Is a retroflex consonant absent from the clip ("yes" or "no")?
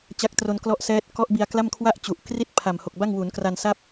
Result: yes